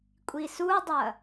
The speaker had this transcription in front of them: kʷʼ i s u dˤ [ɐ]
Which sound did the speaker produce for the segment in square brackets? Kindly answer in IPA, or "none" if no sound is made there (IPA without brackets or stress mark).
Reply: ɐ